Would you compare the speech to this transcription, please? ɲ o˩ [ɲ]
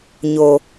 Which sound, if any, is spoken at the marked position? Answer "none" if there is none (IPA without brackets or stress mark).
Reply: none